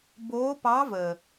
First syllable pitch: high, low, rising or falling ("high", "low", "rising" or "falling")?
rising